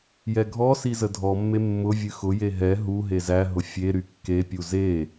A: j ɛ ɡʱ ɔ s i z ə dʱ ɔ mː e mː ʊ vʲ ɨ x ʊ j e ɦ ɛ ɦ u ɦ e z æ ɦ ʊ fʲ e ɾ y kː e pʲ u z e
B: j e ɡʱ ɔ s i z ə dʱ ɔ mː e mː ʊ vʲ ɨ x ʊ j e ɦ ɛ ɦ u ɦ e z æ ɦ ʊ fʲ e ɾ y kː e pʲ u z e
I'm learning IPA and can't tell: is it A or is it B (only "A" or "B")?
A